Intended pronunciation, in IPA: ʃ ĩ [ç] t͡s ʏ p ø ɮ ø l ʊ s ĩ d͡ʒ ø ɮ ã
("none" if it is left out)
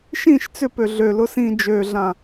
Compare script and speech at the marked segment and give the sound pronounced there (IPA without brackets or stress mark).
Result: ʃ